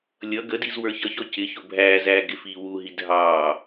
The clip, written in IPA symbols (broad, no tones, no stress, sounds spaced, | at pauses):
lʲ ʌ ɡ ə d i z w ə˞ ç ʌ ç ɔ c ɪ ç ʊ bʱ æː z æː ɡ ɪ f iː w u ɦ i dʱ ɑː